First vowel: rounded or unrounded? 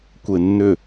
unrounded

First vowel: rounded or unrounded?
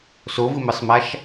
rounded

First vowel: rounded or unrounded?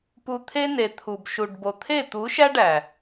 rounded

